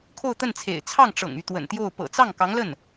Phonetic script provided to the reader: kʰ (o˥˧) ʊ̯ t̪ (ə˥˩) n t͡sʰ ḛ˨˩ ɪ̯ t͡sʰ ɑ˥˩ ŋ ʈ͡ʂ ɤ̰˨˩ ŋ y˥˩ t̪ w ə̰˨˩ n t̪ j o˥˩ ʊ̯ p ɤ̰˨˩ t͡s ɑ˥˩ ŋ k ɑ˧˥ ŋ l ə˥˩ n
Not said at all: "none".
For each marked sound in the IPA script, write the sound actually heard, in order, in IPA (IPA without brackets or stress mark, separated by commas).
o˥˧, ə˥˩